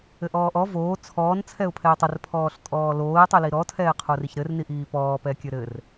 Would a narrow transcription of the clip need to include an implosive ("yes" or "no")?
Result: no